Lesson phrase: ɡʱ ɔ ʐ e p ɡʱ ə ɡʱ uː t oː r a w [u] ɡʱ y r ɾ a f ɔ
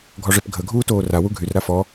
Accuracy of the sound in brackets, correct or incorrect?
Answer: correct